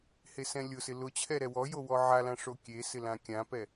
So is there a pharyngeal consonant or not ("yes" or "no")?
yes